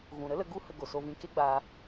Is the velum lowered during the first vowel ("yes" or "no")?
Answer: yes